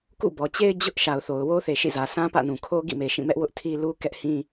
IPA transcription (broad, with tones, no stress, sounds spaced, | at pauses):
k ṵ˦˨ b ɔ˨ t͡ɕ e˦ ɪ̯ d͡ʑ ʊ˦ ʔ ʃ a˨ ʊ̯ θ o˨ ʊ̯ w o˦ θ e˨ ʃ ḭ˦˨ z ä˨ s ã˦ p ä̰˦˨ n ũ˨ kʰ o˦ ɡ ḭ˦˨ m e˨ ʃ ĩ˦˨ m ɛ˦ ʔ w ʊ˦ ʔ tʰ i˦ l u˦ k ɛ˦ ʔ h ĩ˦